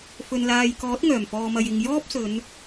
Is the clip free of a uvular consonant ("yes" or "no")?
yes